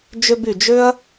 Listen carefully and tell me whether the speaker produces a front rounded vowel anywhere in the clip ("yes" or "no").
yes